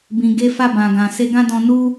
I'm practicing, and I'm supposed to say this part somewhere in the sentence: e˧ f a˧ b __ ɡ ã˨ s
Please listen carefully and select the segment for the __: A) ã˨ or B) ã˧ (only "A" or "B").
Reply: A